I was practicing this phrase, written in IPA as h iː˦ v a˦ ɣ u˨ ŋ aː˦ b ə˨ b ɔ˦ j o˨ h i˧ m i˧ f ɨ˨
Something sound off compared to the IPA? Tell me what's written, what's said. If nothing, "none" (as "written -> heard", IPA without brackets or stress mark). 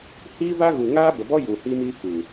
o˨ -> u˨